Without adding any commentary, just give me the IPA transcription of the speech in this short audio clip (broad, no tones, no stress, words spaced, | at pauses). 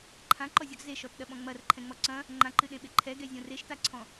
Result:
ǃʰãǃɔzʲɔɡ zeʃɔtɗɐɓɔ̃ ŋ͡mɐrǃʰɛ̃ŋ͡mɔ ǀɐ̃ | ŋ͡ǃãǃɨɗẽɓe ǃʰɛɡɛzʲõ reʃtaǀʰɔ̃